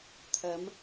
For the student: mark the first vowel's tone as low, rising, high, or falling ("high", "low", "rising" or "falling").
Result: rising